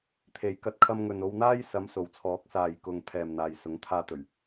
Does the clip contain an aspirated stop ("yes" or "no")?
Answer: yes